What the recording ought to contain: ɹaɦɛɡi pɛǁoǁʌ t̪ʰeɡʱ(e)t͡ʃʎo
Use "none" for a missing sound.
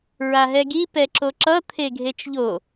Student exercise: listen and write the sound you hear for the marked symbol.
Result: e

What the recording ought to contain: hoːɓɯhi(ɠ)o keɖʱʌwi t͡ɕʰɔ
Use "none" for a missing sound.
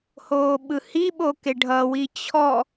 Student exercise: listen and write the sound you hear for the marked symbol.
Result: ɓ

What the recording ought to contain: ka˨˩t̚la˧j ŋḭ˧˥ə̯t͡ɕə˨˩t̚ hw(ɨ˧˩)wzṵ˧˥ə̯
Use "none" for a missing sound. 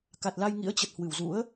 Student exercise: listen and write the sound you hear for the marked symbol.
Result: ɨ˧˩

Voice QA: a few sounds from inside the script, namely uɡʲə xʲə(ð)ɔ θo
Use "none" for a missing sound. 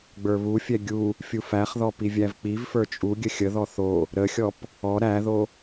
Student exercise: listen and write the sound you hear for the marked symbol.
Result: ð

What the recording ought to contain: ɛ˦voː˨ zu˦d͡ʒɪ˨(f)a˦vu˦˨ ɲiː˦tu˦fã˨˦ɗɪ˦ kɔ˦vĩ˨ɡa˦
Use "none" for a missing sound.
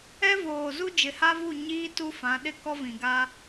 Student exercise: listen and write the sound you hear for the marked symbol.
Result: h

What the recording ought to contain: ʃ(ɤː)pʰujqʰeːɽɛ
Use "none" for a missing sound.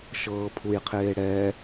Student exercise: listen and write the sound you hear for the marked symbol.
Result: ɤː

